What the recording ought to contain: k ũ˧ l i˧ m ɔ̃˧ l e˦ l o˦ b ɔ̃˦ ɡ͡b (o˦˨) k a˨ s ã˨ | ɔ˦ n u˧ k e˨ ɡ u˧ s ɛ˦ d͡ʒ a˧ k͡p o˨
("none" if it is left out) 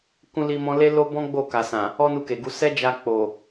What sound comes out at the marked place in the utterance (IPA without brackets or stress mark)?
o˦˨